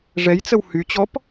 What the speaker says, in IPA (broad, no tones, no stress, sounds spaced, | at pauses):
ʐ ɛ j t͡s ə w h y t͡ɕ ɔ p